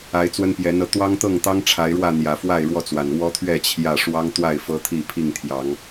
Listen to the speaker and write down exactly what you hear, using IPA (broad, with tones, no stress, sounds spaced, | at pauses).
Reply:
a˨˦ ɪ̯ t͡s w ə˦ n p j ɛ˨˦ n ɤ˨˦ t̪ w ɑ˦ ŋ t̪ ɤ˥˨ ŋ t̪ ɑ˦ ŋ ʈ͡ʂʰ a˨˦ ɪ̯ ɻ w ä˥˨ n̪ j ä˨˩ f w a˥˨ ɪ̯ ɻ w ɔ˥˨ t͡s w a˨˩ n w ɔ˦ t̪ʰ ɥ ɛ˥˨ t͡ɕʰ j ä˥˨ ʂ w ɑ˦ ŋ t̪ w a˥˨ ɪ̯ f ɤ˦ t̪ʰ i˥˨ pʰ i˥˨ ŋ t̪ʰ j ɑ˨˦ ŋ